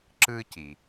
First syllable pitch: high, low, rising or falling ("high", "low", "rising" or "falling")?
high